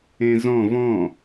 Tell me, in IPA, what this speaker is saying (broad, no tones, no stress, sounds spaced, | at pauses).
ẽ z ɔ̃ v ɔ̃